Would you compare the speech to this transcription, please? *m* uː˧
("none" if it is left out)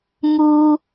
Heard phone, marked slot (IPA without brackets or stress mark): m